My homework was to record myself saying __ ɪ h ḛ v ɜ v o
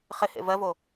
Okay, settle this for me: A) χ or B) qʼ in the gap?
A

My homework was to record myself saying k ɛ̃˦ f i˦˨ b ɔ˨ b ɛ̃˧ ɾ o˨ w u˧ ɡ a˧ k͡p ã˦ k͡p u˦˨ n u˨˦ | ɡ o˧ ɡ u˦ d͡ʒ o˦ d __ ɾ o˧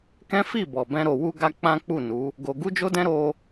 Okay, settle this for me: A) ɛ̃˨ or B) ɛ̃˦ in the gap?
B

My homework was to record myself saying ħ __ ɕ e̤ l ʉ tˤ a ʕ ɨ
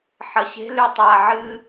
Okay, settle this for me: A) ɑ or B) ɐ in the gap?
B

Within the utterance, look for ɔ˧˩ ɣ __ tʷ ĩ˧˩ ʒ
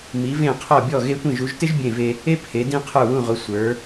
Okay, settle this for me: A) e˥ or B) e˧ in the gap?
B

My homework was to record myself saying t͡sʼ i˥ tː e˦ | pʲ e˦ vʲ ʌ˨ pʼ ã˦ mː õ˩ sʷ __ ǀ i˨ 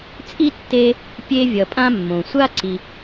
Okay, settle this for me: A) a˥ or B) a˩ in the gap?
A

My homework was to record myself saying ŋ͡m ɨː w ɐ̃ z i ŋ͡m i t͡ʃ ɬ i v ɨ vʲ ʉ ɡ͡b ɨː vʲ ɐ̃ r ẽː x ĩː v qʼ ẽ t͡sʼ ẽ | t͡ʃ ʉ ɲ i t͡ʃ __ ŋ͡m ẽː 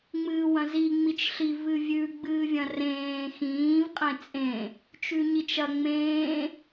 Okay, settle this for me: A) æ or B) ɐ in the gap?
B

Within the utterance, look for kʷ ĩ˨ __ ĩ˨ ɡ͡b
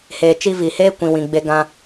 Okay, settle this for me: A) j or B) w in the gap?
B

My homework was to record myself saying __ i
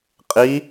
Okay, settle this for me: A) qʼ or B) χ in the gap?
A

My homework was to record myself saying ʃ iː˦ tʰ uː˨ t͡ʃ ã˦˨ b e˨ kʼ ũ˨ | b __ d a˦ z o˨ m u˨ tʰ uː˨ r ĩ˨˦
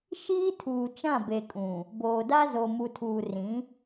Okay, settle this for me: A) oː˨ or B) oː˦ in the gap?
A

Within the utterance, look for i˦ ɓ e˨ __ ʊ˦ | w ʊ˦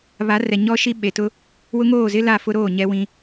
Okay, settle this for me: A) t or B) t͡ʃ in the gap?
A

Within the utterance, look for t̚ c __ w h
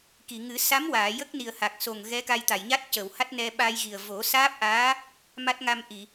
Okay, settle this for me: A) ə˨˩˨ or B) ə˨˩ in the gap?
A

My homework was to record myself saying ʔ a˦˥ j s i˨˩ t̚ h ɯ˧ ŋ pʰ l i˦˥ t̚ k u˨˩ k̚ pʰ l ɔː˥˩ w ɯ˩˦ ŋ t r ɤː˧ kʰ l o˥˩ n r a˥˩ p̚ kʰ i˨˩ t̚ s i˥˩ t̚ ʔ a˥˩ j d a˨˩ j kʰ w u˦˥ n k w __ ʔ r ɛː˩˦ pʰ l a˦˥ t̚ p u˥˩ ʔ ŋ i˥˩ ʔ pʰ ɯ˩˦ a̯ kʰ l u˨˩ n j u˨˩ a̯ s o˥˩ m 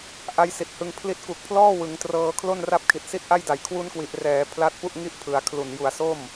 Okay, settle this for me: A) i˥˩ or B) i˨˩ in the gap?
B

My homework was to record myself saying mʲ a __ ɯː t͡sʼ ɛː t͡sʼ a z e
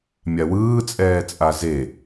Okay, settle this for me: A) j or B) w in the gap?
B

